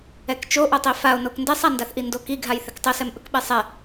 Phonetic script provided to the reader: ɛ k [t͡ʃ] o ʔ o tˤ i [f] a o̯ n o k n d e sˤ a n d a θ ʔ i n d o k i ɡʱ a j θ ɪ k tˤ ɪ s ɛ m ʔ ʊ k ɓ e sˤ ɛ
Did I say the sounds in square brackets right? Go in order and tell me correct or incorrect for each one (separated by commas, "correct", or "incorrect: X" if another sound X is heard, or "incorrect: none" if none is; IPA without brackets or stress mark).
correct, correct